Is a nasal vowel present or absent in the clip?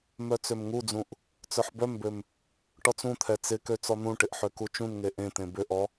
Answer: present